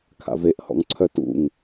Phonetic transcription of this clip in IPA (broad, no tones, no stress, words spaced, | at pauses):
kʰa̰veʔhɔ̰ŋǀʰœ tṵŋ